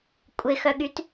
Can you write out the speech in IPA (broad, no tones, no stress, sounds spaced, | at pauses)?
kʷʼ ɪ x œ ɠ y t